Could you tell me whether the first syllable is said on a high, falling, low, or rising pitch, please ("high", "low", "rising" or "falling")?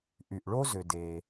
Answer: low